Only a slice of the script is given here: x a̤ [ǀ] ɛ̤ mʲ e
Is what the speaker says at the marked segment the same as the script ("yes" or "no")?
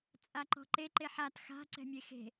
yes